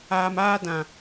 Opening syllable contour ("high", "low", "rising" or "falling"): low